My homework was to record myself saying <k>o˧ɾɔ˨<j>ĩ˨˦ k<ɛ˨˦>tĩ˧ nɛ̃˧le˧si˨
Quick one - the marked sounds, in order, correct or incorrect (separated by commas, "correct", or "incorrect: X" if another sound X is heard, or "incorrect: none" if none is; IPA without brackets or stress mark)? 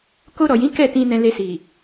correct, correct, incorrect: ɛ˦˨